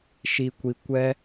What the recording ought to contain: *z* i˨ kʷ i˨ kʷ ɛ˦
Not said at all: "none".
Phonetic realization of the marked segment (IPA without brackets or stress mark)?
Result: ʃ